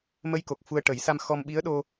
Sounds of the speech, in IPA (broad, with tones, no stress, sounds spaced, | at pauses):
m ə˧ j k o˨˩ k̚ f u˧ ə̯ ʈ ə˨˩˦ j s a˧ m x ɔ˧ m ɓ i˧˥ ə̯ ɗ o˧